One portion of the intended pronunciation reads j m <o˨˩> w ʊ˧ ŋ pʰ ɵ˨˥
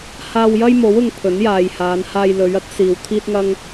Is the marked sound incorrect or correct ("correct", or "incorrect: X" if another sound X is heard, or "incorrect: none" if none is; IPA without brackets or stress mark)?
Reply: incorrect: o˨˥